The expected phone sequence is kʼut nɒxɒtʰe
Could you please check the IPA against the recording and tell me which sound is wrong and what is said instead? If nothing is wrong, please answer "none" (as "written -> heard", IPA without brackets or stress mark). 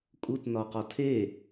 x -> q